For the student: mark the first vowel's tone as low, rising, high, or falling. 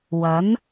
rising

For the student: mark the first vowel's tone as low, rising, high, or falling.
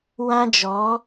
high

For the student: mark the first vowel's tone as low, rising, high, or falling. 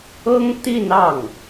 high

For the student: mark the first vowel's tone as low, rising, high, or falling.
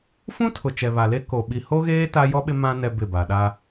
high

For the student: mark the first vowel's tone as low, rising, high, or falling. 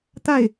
falling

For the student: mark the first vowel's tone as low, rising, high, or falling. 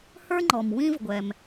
high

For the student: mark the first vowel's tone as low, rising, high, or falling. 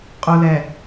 low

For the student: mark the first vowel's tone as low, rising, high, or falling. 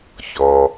low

